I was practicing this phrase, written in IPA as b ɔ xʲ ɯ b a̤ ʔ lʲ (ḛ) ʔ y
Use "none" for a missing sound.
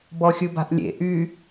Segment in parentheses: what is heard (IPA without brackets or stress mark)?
ḛ